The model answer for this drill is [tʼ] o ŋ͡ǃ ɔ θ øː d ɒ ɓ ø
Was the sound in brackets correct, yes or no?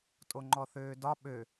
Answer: yes